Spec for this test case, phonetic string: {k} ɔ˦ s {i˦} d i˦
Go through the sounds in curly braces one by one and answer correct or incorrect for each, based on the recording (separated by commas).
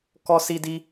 correct, correct